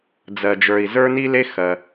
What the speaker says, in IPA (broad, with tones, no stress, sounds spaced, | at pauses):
d͡z ɜ˧ d͡ʒ ə˞˧ i̯ z ə˞˥ n i˥ l e˥ x ɜ˧